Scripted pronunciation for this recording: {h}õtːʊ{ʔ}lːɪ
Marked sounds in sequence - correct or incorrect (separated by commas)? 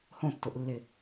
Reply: correct, correct